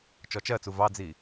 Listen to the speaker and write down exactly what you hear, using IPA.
t͡ʃɔt͡ʃɜt͡su vɑd͡zi

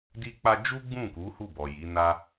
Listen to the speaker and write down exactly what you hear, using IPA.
di˦k͡pa˦ d͡ʒu˦ ɡ͡bũ˦˨ku˨˦ hu˦˨bɔ˨ji˨˦ na˦

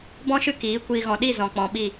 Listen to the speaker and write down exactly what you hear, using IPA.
bɔ̃˦ʃɨ˦ kiː˨˦ kʷiː˨ɣɔ̃˨ɗi˦˨ zɔ̃˨k͡pɔ̃˨ɓi˦˨

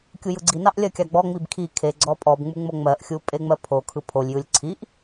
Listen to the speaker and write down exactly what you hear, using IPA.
kʲujɯɡ͡ǀinɑʔ lʲɜkʲɑɡ͡bɔŋ͡mib kʰi kʰe ɡ͡ǀɔpʼɔbŋ͡mu ŋ͡moŋ͡mɜʔxʲu pʼeŋ͡mɜpʰokʰɯ pʰolʲjɯlʲ ǀʰiʔ

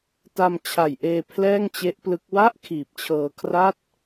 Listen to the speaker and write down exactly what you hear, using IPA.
ta˧mt͡ɕʰa˨˩jʔeː˧ pʰlɛː˥˩ŋt͡ɕe˦˥ʔplɯ˦˥k̚ wa˥˩ʔ kʰiː˨˩p̚t͡ɕʰɤː˧ kʰra˥˩t̚

